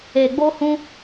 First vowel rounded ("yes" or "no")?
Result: no